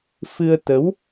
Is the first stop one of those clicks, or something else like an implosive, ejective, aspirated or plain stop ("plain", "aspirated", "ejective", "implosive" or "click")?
plain